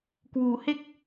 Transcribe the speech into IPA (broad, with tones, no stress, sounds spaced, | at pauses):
k w uː˩˦ h e˥˩ k̚